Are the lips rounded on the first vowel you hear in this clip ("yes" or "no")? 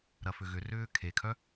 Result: no